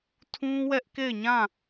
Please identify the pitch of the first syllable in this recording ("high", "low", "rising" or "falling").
high